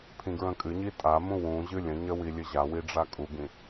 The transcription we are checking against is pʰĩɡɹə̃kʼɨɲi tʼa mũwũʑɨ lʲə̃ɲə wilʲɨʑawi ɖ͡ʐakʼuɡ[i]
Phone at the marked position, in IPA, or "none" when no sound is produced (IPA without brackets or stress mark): ĩ